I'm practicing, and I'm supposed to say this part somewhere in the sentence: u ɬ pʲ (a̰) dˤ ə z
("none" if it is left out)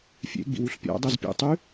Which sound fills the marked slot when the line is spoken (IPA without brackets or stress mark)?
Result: a̰